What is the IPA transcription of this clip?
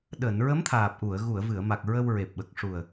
ɗ əː˨˩˨ n ɹ ə˧˥ m t̪ʰ aː˨˩ p̚ ʔ u˨˩˨ ə̯ ɣ u˨˩˨ ə̯ v ɨ˨˩˨ ə̯ m a˨˩ k̚ ɹ ə˧ w ɹ e˨˩ p̚ ɓ ə˨˩ k̚ ʂ u˨˩ ə̯

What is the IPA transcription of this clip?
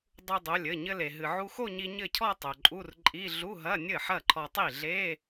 dˤ u˧ dˤ o˩˧˩ lʲ ɘ˩˧˩ ɲ ɘ˧ l e˩ ɦ ɨ˩ ʕ u˧ x o˥˧ ɲ i˧ ɲ ɘ˥˩ cʰ ɔ˥˧ tˤ o˩ ǃʼ u˧˥˧ r ǃʼ i˧˥˧ ɮ u˧˥˧ ɦ ɐ˧˥˧ nʲ ɘ˥˩ ħ ɐ˥˩ ǃʰ ɔ˧ tˤ i˥˩ ɮ e˧˥˧

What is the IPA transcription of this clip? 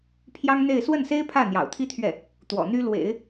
pʰ j ɑ˥ ŋ n̪ e˥˧ ɪ̯ s w ə˥˩ n s e˥ ɪ̯ pʰ ä˥˩ n̪ j ɑ̰˨˩ ʊ̯ t̪ʰ i˥ t̪ʰ ɥ ɛ˥˩ | t̪ w ɔ̰˨˩ n̪ y˥ l w ḛ˨˩˦ ɪ̯

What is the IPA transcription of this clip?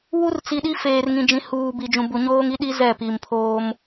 w u˦ r t͡s i˨ ɗ i˦ f eː˨ r ŋ ĩ˨ d͡ʒ ĩ˨˦ h uː˨ b i˨ d͡ʒ ũ˨ b u˨ ɲ oː˦ ŋ i˦ ɗ i˦ z ɛ˦˨ p i˨ m pʰ oː˦ m

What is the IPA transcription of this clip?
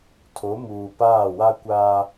tʰ o˨˦ m uː˨ p aː˦˨ w a˦ kʷ aː˦

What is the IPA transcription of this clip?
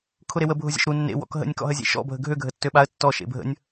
kʰ ʊ ɾ e w ə bʱ ʊ zʲ ə̰ ʃ ɾ u nː ḛ w ɔ̰ k ɦ ə̰ nʲ k ɔ̰ ɦ ə zʲ ḛ ʃ ɔ̰ bʱ ə ɡʱ ø ɡʱ ə tː ø ɓ a ə̯ tː ɔ ʃ ḛ bʱ ə̰ nʲ

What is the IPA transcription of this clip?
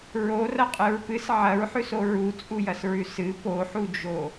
ɹ o r ɐ qʼ ɨ ɹ p ɨ s ʕ ɐ ɹ ħ ʉ s o ɹ u t͡sʼ u j ɐ s ɹ ʉ s ɨ p o ħ u d͡ʒ o

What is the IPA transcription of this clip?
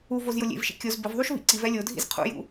u v o z j ʊ lʲ ḛ v ʃ ḭ kʲ o z b ɪ v ðˤ u ʃ v ḭ ǀ i v ɛ lʲ o dʱ ḭ z qʰ ṵ j ṵ

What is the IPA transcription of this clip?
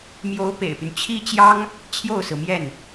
m j o˧˥ ʊ̯ p ḛ˨˩ ɪ̯ p y˦ n t͡ɕʰ i˥ t͡ɕ j ɑ˥ ŋ | t͡ɕʰ j o˥˩ ʊ̯ s ɹ̩˩ m j ɛ˥˩ n

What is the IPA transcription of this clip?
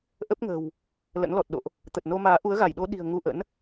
ʔ ə˦˥ p̚ ŋ ə̤˨˩ w | l ə̰˧˥ n l ɔ˨˩ t̚ ɗ o̰˧˨ ʔ | t̪ ə˨˩ t̚ n o˧ m aː˨˦ ʔ u˨˦ ə̯ ɣ a˧˩ j ɗ o˨˦ ɗ i̤˨˩ ə̯ ŋ u˧ ʔ ə̰˧˥ n

